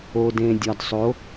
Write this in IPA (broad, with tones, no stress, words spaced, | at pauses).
o˨dẽ˨ dʲɒ˨dsˤo˨˥